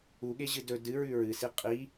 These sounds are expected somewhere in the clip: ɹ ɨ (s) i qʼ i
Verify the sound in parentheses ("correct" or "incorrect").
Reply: correct